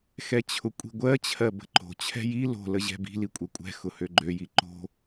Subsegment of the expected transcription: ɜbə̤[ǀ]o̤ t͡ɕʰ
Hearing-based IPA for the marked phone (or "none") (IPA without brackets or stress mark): ǃ